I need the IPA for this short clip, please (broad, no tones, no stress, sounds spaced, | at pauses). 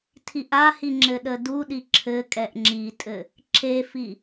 tʰ i ʔ a h i ŋ͡ǁ ɘ ɗ ə d u ɗ i ǁʰ ɘ kʼ ɛ ʔ ŋ͡ǁ i tʼ ɘ | ǁ e f i